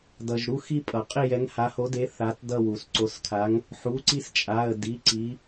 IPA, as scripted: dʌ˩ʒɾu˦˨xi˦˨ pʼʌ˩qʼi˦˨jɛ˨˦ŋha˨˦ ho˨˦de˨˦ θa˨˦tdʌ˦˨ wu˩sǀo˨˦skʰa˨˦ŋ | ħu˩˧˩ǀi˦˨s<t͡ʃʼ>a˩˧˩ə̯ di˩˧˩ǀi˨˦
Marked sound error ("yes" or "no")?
no